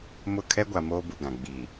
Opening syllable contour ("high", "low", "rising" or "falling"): falling